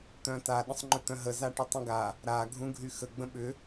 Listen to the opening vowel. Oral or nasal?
nasal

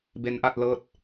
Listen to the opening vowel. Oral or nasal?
oral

